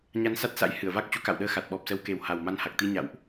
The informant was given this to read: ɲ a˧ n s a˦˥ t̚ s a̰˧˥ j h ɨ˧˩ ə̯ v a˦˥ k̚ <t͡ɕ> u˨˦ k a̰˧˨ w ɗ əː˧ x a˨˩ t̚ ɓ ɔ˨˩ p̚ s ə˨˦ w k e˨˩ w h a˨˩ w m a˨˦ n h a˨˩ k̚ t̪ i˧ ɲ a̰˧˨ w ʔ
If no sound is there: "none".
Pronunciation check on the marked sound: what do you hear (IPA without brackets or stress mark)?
t͡ɕ